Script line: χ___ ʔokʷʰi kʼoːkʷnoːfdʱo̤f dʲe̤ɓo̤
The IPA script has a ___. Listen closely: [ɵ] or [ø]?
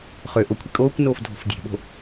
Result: ø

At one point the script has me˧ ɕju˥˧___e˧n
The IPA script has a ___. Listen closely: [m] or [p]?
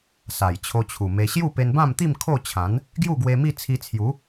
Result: p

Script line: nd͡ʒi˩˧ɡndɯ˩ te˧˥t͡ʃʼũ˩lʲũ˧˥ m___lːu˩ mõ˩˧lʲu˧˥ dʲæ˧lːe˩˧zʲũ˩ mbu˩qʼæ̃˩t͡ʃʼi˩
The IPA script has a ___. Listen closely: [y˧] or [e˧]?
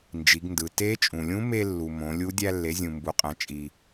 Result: e˧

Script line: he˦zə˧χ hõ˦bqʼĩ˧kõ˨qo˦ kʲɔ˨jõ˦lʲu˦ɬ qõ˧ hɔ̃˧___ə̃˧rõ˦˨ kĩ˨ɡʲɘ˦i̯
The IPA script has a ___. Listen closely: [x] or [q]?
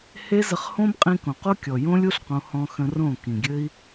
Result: x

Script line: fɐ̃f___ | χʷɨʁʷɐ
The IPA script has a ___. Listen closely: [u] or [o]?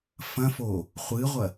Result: o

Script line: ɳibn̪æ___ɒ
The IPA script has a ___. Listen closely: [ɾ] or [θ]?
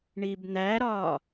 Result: ɾ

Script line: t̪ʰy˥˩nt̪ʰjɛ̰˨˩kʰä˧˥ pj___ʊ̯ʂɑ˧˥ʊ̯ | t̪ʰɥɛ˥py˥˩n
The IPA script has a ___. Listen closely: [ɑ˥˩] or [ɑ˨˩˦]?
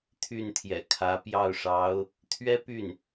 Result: ɑ˥˩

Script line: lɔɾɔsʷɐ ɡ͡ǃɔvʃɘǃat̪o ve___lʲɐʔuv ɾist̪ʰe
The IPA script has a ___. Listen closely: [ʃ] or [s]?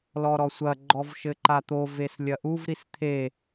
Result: s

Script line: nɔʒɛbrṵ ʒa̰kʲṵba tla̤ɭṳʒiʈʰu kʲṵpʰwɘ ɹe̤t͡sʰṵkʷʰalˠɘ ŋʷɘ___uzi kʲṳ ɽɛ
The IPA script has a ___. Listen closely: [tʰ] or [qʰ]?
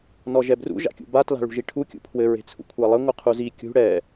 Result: qʰ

